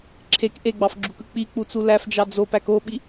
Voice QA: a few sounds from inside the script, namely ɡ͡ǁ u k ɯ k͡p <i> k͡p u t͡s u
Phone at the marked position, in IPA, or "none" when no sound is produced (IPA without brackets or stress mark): i